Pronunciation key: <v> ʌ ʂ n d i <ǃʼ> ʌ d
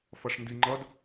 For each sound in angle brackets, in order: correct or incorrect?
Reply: incorrect, incorrect

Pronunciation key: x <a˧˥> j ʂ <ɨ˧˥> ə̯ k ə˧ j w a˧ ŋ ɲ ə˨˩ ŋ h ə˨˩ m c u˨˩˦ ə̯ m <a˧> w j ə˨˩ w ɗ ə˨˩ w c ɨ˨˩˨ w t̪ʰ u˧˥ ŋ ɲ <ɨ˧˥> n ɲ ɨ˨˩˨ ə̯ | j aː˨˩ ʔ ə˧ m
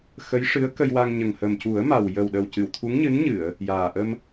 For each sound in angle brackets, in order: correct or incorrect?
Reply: incorrect, correct, incorrect, correct

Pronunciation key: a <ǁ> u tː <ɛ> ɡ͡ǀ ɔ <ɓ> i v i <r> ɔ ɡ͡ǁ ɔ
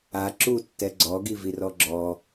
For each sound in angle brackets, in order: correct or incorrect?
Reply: correct, correct, incorrect, correct

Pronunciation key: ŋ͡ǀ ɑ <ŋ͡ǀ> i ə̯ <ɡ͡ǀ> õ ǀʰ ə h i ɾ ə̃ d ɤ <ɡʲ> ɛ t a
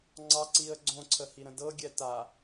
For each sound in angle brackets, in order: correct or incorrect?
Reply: incorrect, correct, correct

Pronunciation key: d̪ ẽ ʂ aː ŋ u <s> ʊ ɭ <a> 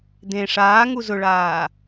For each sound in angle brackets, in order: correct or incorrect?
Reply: incorrect, incorrect

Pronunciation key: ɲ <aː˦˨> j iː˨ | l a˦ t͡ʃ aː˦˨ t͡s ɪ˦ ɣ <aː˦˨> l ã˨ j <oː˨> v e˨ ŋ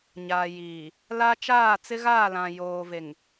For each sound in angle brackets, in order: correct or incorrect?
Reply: incorrect, correct, correct

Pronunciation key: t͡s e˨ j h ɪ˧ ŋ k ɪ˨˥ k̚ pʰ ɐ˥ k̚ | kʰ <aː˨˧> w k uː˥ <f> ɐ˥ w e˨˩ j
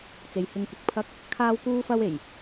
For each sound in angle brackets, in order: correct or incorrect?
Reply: incorrect, correct

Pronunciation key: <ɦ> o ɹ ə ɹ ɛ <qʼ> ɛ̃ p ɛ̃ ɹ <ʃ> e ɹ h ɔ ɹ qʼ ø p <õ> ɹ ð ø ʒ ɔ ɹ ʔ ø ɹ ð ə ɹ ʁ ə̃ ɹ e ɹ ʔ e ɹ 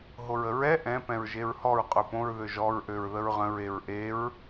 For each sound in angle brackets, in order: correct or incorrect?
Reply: correct, incorrect, incorrect, correct

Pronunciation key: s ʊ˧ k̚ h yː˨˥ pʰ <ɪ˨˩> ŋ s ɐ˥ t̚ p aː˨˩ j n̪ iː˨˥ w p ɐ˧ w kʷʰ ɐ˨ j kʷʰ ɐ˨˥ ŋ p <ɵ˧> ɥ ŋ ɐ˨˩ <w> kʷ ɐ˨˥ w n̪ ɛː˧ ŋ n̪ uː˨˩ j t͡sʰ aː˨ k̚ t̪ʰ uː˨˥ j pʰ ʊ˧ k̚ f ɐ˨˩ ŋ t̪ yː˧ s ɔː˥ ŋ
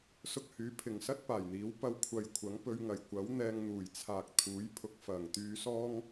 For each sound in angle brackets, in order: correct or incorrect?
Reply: correct, correct, incorrect

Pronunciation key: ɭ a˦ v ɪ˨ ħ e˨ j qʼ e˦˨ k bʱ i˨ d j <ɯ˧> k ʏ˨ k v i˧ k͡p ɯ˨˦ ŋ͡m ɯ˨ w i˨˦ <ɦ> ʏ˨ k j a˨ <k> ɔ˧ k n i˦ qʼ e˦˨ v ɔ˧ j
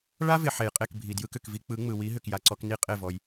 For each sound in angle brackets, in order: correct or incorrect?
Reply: correct, correct, incorrect

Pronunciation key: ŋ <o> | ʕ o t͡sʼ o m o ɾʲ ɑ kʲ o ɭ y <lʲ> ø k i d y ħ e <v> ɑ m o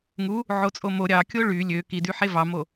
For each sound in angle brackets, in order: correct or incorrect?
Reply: incorrect, correct, correct

